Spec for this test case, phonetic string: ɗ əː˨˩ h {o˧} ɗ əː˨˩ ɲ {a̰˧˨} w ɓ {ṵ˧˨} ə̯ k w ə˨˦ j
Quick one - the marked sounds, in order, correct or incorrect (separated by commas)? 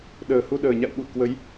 incorrect, correct, correct